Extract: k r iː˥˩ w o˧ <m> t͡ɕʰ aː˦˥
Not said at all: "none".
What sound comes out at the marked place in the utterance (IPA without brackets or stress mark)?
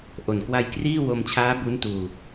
m